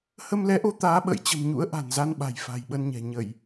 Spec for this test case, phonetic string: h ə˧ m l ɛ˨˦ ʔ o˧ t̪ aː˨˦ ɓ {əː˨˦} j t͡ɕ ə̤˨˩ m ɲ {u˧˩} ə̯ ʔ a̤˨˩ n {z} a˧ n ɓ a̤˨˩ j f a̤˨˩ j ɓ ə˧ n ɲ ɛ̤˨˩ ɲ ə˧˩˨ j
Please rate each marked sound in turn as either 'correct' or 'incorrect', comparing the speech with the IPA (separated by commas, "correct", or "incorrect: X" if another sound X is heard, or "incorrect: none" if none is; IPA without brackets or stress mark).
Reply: incorrect: ə̰ː˧˨, incorrect: ṵ˧˥, correct